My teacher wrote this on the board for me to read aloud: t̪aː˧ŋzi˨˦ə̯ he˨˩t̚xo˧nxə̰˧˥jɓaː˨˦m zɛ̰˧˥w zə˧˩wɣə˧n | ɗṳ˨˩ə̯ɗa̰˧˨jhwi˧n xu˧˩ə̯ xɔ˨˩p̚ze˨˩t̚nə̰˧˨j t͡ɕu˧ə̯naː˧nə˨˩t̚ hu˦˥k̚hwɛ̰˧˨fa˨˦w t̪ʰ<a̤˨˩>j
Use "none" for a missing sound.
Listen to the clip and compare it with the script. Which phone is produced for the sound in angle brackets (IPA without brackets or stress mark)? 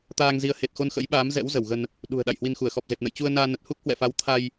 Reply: a˧